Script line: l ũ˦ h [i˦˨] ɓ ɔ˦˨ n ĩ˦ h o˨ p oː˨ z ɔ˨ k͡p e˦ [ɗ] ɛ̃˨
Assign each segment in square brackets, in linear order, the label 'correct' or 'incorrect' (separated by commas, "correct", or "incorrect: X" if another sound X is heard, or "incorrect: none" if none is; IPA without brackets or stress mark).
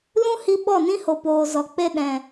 incorrect: i˧, correct